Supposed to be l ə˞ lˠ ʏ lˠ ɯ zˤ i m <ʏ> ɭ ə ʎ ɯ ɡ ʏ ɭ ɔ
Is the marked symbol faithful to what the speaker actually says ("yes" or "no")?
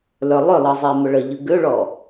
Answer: yes